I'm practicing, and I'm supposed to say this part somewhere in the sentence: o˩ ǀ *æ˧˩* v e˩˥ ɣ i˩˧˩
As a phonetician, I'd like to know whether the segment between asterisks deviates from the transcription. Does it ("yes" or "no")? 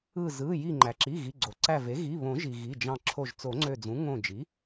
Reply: no